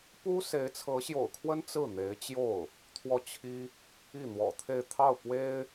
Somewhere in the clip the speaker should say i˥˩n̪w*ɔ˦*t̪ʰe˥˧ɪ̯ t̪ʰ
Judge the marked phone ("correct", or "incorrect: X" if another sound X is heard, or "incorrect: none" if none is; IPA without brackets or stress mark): incorrect: ɔ̰˨˩